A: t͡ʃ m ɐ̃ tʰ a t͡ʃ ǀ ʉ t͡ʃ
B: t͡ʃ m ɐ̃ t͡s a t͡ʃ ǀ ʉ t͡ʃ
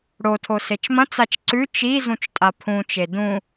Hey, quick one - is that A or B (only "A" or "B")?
B